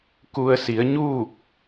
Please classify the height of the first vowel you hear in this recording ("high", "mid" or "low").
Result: high